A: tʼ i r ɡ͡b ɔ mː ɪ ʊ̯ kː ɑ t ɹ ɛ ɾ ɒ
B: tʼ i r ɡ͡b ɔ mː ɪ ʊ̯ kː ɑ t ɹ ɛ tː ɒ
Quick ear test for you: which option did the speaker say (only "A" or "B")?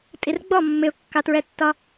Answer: B